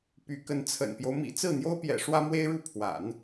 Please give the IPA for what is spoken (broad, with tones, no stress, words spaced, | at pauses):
py˧˥kə˧˥n t͡sʰə̰˨˩npjo˦ʊ̯ mḭ˨˩ t͡sɹ̩˥˩n̪jo˥ʊ̯pjɛ̰˨˩ ʂwä˥mwe˥ɪ̯ɻu˥˩pʰwa̰˨˩˦n